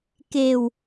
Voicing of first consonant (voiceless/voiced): voiceless